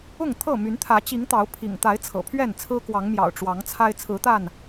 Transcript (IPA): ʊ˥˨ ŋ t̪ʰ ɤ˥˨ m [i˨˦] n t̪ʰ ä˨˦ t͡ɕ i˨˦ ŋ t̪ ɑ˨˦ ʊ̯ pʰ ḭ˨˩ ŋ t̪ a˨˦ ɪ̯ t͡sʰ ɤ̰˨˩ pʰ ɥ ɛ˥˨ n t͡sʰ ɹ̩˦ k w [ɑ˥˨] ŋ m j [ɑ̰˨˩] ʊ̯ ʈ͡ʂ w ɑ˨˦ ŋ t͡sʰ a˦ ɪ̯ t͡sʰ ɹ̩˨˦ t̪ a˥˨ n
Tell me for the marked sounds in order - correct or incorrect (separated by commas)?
incorrect, incorrect, correct